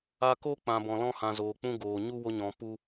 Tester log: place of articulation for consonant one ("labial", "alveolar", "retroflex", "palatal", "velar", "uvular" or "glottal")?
velar